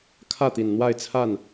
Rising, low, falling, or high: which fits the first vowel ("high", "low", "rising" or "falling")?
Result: falling